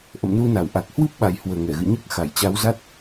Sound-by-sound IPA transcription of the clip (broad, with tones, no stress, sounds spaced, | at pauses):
ʔ ə̰˧˨ m n u˧ n a˧˩ w ʔ a˨˩ k̚ h w ɨ˦˥ p̚ ɓ a˨˩ j h w əː˨˩ ŋ ɛ˧˩ ɣ ɨ̰˧˨ ɲ əː˦˥ k̚ x a˧˩ j t͡ɕ a˨˦ w z a˦˥ t̚